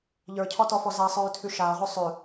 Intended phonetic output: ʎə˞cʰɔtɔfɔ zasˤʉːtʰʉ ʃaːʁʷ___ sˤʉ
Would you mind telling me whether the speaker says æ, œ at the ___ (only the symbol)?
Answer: œ